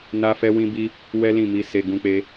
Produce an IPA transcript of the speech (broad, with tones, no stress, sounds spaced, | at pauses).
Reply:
n a˦ f ɛ˦ w ĩ˦ b i˦ | w ɛ˦ l ĩ˦˨ m i˧ s e˧ ɡ ũ˦ k͡p e˦